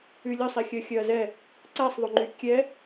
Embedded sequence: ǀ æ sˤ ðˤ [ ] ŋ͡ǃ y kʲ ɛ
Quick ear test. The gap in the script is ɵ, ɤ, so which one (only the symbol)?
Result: ɵ